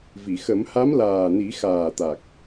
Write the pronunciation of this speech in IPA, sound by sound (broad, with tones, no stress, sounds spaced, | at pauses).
v i˨˩˨ x ə˨˩˦ m h a˧˥ m l aː˨˩ n i˨˩˦ x aː˨˩ t̪ a˨˩ k̚